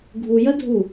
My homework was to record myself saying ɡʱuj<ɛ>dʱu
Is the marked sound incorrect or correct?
incorrect